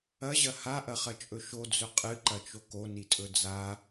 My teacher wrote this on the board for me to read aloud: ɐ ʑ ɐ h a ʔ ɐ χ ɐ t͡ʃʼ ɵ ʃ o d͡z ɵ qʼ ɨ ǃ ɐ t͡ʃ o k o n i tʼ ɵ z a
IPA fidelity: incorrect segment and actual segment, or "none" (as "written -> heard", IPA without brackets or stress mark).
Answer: z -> d͡z